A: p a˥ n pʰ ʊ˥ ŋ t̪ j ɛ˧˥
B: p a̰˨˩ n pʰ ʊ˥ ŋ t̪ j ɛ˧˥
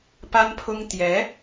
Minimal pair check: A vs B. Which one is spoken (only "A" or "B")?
A